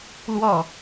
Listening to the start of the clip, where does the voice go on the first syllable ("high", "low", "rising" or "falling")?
falling